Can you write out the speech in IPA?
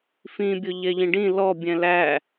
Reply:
fĩbʲʊ ʎɛʎĩɖĩ lɔbʲɛ̃ læ

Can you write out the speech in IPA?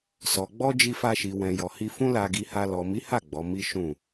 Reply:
sɔ˨ɡ͡bɔ˧ d͡ʒi˧fa˧ʃi˨ wɛ̃˨jɔ˨ hi˧ fũ˦la˧ɡi˧ha˧ lɔ˨mi˨˦ha˦˨ ɡ͡bɔ˨˦mi˦ ʃũ˦˨

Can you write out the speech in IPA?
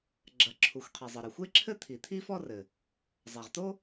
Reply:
ɡ͡ǁɐ˩ǁʰu˩xʷqʰi˩ zˤɘ˩ɾɘ˩xʷe˥ǁʰɘ˥ t̪ʰi˩t̪ʰi˥fɔ˥rɘ˩ | zˤa˩ʁt̪o˥

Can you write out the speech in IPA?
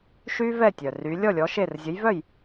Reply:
ʃy˥vɛ˥˨ tʲœ˩ ry˨˦ lʲɔ˥˨lʲɔ˨˦ ʃe˥˨r zʲə˨˦jvœ˥˨j

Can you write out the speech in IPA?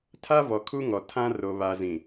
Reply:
tʰa˦vɔ˨kʰu˦ŋɔ˨ tʰã˦ ro˨βa˨zĩ˨

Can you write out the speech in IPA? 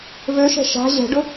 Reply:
vøʃɛ̤ ʃa̤ ʑɛ̤ɖʊ

